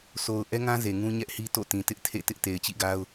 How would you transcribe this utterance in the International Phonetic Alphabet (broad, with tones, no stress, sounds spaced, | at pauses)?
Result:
s o˨ ʊ̯ ʔ ɛ˦ ŋ ã˦ z e˨ ŋ ũ˦ ɲ ɛ˦ ʔ h i˦ t o̰˦˨ t ĩ˨ t ɪ˦ ʔ tʰ ḛ˦˨ t ɪ˦ ʔ t e˨ ɪ̯ t͡ɕ ḭ˦˨ ɡ a˦ ʊ̯